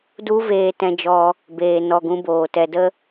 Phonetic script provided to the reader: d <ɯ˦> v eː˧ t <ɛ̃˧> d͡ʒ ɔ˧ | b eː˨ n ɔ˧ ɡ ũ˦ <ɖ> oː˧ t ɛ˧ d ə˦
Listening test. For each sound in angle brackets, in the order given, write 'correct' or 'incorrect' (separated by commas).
incorrect, correct, incorrect